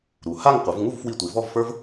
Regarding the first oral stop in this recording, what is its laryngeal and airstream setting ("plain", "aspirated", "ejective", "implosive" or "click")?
plain